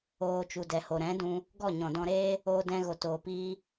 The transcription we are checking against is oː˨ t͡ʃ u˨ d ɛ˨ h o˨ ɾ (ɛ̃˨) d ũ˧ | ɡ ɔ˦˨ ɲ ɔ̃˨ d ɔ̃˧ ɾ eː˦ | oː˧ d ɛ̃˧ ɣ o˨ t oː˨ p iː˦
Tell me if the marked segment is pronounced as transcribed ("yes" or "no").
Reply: no